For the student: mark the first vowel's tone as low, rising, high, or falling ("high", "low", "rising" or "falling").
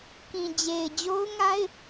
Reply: low